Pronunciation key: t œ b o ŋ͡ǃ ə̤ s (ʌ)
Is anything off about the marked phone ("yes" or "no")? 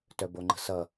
no